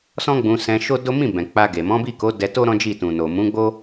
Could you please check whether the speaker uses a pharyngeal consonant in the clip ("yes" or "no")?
no